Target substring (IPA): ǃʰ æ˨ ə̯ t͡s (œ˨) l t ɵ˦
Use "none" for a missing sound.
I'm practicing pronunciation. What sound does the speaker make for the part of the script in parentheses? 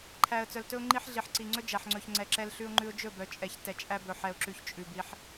œ˨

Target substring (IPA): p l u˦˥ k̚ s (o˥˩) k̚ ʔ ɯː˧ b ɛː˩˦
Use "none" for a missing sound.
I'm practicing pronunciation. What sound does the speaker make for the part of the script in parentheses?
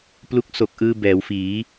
o˨˩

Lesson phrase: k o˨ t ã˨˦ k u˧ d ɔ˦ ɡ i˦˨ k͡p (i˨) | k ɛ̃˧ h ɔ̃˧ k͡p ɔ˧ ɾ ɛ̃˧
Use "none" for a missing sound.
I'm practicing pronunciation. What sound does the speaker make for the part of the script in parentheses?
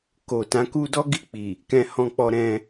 i˨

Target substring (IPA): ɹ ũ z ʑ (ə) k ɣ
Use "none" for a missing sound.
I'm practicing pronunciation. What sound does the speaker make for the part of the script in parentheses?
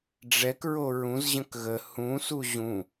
ə̃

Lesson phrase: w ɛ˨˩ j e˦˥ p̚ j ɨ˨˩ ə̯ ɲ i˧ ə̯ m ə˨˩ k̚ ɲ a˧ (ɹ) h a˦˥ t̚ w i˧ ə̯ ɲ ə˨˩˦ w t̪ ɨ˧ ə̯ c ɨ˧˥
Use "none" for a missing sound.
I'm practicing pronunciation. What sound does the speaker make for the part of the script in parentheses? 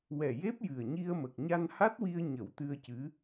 n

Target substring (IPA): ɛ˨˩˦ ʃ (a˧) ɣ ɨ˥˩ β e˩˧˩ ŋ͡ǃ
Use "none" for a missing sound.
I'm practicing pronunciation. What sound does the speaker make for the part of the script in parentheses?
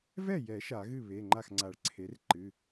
a˨˩˦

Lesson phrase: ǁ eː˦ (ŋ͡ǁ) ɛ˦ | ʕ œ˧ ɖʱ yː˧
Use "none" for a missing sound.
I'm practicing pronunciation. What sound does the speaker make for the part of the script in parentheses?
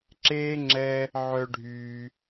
ŋ͡ǁ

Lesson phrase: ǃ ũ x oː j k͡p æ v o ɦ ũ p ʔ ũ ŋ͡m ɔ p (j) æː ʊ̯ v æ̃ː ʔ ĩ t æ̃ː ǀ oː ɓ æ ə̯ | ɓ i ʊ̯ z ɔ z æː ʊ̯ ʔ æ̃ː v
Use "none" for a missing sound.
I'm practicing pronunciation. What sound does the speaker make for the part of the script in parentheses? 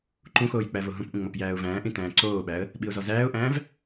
j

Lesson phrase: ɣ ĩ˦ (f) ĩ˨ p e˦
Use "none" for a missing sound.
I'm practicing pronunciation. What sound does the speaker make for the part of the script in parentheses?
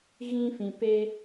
f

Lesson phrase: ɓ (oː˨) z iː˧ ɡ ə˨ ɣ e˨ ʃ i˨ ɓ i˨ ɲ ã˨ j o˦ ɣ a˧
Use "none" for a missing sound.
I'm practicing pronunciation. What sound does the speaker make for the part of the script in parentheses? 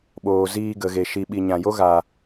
oː˨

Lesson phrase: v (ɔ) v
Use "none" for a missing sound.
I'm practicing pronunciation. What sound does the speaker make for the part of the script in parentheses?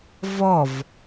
ɔ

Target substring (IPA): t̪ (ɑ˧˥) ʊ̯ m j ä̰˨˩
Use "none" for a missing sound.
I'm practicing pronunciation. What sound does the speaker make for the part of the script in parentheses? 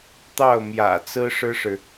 ɑ˥˩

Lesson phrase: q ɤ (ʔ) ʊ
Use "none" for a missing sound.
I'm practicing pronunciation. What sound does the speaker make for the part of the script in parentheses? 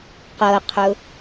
qʰ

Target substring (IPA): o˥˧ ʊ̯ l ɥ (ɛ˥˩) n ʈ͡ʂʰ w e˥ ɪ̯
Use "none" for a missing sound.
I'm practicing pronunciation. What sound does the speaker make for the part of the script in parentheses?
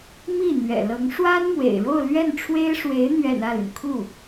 ɛ˥˩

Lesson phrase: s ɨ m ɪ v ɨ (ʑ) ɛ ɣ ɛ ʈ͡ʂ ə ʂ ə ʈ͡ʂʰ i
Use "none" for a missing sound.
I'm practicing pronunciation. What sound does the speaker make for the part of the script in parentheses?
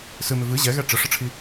ʑ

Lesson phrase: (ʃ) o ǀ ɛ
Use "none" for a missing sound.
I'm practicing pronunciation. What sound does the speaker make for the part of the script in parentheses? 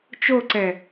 t͡ʃ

